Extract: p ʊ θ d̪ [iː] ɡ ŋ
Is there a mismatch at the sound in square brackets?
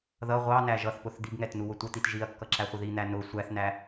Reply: yes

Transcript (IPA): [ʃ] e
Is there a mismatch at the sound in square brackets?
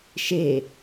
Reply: no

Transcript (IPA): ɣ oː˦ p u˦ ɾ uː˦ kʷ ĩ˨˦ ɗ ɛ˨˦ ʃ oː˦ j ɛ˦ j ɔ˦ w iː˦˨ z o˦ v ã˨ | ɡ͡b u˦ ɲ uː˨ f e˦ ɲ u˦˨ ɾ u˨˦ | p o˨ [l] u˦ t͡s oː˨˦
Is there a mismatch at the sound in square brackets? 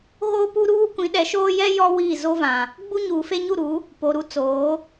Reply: yes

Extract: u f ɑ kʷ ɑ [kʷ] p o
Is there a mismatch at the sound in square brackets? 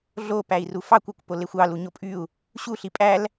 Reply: no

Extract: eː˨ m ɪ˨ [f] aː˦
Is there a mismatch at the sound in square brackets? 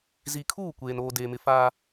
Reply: no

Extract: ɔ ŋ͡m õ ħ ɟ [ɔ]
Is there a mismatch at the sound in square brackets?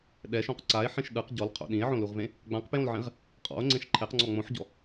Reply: yes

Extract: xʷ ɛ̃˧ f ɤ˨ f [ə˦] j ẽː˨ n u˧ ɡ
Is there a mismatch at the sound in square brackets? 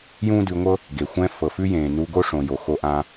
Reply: yes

